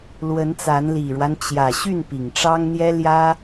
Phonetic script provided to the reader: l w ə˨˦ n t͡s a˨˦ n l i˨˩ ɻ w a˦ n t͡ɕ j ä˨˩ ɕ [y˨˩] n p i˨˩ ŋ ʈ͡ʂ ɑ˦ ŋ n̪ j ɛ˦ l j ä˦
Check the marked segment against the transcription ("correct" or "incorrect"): incorrect